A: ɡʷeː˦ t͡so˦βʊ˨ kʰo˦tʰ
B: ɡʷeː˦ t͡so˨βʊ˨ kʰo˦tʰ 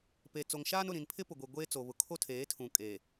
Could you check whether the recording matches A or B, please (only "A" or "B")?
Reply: B